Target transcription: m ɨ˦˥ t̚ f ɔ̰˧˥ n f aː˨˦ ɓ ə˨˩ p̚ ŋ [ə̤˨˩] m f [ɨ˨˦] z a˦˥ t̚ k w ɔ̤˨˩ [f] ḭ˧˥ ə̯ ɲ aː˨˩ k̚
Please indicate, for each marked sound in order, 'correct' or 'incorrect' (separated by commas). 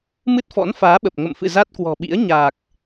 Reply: incorrect, incorrect, incorrect